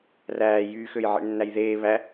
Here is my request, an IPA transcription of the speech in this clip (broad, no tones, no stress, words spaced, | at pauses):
ræː jyːxøjʕḛɳ nːæjðeː βæ